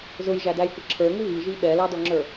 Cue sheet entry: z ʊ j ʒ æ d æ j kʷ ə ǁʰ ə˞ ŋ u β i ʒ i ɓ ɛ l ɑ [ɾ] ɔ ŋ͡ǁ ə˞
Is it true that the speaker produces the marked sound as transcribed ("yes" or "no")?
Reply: no